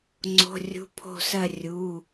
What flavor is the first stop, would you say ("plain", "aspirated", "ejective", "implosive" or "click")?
click